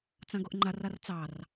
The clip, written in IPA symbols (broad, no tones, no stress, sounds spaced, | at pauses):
t͡s ã ɡ o ʔ ŋ͡ǃ a r a r t͡s ɑ r